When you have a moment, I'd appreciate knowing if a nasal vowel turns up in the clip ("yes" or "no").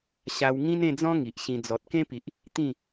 yes